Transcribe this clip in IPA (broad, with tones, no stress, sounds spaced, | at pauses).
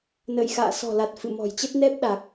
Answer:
n ə̰ː˧˨ j x a̰ː˧˨ s ɔ̤˨˩ l a˨˩ t̚ f ɨ̰˧˨ m ɔ̤˨˩ j t͡ɕ ə˦˥ t̚ n ɛ˦˥ p̚ ɗ a˨˩ k̚